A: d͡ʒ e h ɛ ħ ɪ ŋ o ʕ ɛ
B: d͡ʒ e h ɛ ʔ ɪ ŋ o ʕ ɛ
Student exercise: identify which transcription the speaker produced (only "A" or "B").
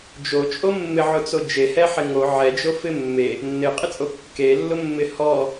A